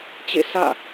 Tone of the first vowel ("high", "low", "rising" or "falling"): falling